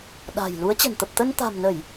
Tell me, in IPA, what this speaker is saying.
ɗ a̤˨˩ j l u˨˦ ə̯ t͡ɕ ə̤˨˩ n t̪ ə˨˩ p̚ t̪ ə˧ n t̪ a̤˨˩ m n ə˧˩˨ j

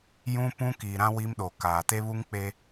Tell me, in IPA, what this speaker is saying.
j ũ˦ p ũ˦ k iː˨ ɾ ã˦ w i˦ m ɗ o˨ k aː˨ t e˦ β u˦ ŋ k͡p e˦

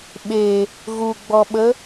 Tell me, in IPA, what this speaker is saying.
ɓ e | ɣ u ɡ͡b ɔ ɓ ə

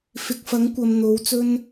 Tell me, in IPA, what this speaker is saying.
f ɪ˨ k̚ f ɐ˨˥ ŋ kʷ ɐ˨ m n̪ o˨˥ w t͡s ɵ˥ n

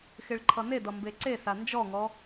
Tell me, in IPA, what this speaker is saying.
x ɪ ɭ ǃʰ ʌ n e d ʌ m b e ǀ e s a n d͡ʒ ɔ ŋ ɔ

